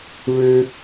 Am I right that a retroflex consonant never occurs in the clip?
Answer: no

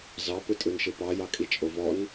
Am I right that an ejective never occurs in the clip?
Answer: no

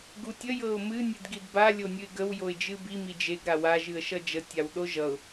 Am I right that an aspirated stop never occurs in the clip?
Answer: yes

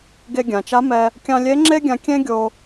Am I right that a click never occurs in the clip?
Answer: no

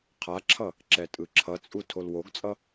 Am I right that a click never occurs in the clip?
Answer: no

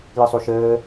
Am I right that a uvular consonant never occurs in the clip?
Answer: yes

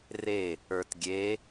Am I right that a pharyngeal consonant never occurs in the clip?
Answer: yes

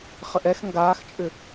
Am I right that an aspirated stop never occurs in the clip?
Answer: yes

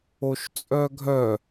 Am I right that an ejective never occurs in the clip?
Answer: no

